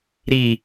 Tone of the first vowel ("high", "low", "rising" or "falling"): low